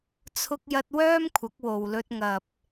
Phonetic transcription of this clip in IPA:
t͡sʰʊ˧k̚jɐ˧t̚ wœː˥mkʷʰɐ˨˥k̚ wo˨wlɵ˧t̚ŋɐ˨p̚

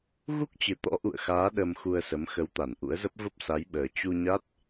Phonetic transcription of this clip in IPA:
ɣu˦˥k̚t͡ɕɨ˨˩t̪ɔ̰˧˥ ʔṵ˧˨ə̯xaː˨˦ ɗə˧mxu˧ə̯sə˨˦m xə˨˦wt̪a˧˩nʔṵ˧˥ə̯zə˦˥p̚ və˦˥p̚sa˨˦jɓəː˨˩ t͡ɕu˧ɲa˦˥t̚

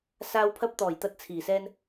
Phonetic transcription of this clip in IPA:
saː˧w pʰɐ˧p̚t̪ɔː˨˩j t̪ɐ˧t̚t͡sʰiː˨˩sɛː˧n

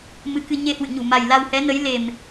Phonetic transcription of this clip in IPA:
mɨ˨˦kɨ˧ ɲe˧hwɨ̰˧˨ɲu˧˩ma˨˩j la˧whɛ˨˦nə˨˦jle˨˩m

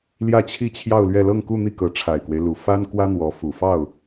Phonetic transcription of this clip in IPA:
ljä˥˧t͡ɕʰi˥˧t͡ɕʰjɑ˥˧ʊ̯lɥɛ˥˧ lɤ˥˧ŋku˥˧n̪i˥˩kɤ˧˥ ʈ͡ʂʰa˨˩ɪ̯kwe˦ɪ̯lu˨˩ fa˥nkwä˥n̪wɔ˧˥ fu˨˩fɑ˥˩ʊ̯

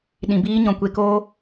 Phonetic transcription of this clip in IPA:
ɗĩ˨biː˦ ɲɔ̃˨kʷe˧koː˦

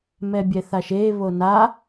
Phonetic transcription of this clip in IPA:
mɛbʲɛθaʃe βona

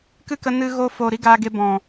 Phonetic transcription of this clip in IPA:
kɨ˦˨kə˧ nɨ˧ ɣo˧ fo˨ ɾi˧ ɡaː˧ɡe˧ bɔ̃˨

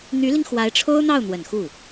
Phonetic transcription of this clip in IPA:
n̪y˧˥li˧ŋ xwa˧˥ɪ̯ʈ͡ʂʰo˥ʊ̯n̪ɑ˥˩ʊ̯ n̪wə˨˩nxu˥˩

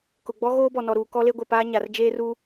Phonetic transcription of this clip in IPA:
kʊ˨ɡ͡bɔ˦ ɣoː˦bɔ˨nɔ˨ɾuː˨ kɔ˦le˦ɡʷɛ˨paː˦ ɲa˨rd͡ʒeː˦ru˦

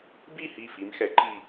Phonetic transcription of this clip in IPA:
bi˥˩hi˧˩ fi˩˧mxɛ˩˥ ǃi˧˩

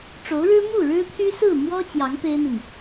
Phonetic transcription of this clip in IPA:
ʈ͡ʂo˧˥ʊ̯ɻɻ̩˥ mu˥˩ɻɻ̩˥t̪ʰy˥ sɹ̩˥˩mwɔ˥ t͡ɕjɑ˧˥ŋ pe˥ɪ̯n̪i˨n

